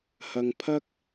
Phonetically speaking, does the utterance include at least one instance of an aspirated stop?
yes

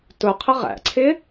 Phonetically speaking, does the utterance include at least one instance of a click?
yes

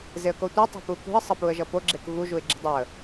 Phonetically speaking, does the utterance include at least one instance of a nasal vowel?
no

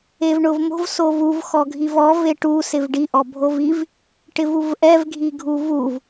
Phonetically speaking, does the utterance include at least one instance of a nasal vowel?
no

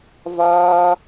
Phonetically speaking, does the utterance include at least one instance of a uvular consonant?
no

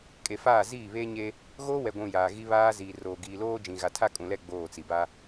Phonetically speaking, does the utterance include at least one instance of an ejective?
yes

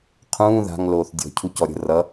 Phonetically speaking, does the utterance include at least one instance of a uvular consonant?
yes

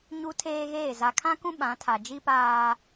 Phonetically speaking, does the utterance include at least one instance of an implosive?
yes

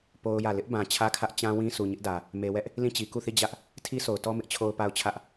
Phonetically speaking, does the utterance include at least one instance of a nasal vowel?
yes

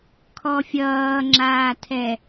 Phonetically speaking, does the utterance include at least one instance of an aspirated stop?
yes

